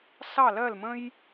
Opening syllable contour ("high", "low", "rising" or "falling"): falling